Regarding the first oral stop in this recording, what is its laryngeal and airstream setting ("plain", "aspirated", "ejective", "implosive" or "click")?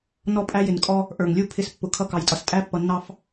ejective